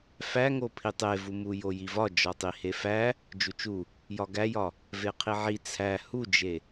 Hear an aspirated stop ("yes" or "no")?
yes